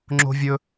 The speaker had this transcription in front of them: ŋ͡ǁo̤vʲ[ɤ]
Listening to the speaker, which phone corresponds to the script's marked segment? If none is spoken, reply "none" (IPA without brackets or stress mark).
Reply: ɵ